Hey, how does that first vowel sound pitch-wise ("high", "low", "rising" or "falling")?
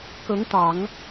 rising